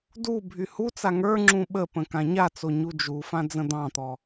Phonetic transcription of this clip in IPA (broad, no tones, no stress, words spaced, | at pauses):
du bʱyhut͡sa ŋə˞ŋ͡ǁũ ɓəpə̃ kãɲat͡so ɲud͡ʒufã d͡zə̃d̪ɑ̃t̪ɔ